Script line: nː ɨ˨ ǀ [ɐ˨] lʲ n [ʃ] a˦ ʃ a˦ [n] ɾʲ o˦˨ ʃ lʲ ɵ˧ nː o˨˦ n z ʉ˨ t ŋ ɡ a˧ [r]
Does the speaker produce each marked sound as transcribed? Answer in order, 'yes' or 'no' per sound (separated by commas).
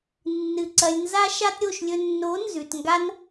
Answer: yes, no, no, no